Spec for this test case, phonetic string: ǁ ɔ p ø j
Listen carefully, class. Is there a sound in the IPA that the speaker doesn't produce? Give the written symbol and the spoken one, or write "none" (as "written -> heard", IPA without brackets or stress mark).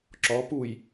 ø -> u